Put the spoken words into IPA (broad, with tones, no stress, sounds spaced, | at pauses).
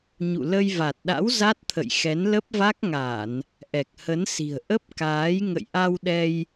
ɲ ṵ˧˨ l ə˧ j v a˨˩ t̚ ɗ a̰˧˥ w z a˦˥ t̚ t̪ʰ ə̰˧˨ j x ɛ˨˦ n l ə˦˥ p̚ v a˦˥ k̚ ŋ a˧˩˨ n | ʔ ɛ˨˩ k̚ h ə˨˦ n s i̤˨˩ ə̯ ʔ ə˦˥ p̚ k aː˨˦ j ŋ ə̰˧˨ j ʔ a˧ w ɗ ɛ˧ j